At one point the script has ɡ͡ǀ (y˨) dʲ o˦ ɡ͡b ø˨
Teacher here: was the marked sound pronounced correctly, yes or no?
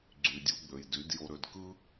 yes